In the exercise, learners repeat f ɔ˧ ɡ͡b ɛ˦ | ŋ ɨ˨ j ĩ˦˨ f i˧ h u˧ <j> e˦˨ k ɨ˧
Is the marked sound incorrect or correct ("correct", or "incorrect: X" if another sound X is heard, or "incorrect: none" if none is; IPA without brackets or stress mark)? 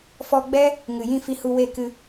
incorrect: w